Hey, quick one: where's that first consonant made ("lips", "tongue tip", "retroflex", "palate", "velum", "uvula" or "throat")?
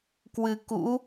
velum